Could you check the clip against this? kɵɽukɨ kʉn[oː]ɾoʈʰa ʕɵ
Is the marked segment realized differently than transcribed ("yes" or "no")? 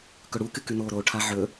no